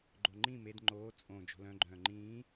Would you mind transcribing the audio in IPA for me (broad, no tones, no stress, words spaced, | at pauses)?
ɡ͡ǃoŋ͡ǃĩ med ŋ͡ǃoː t͡sʼõ d͡ʒo̤lœ̃ ɡ͡ǃœ̃ːŋ͡ǃĩː